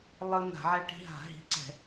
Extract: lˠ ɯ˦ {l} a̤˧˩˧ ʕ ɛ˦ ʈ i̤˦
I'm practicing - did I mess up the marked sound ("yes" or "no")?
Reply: yes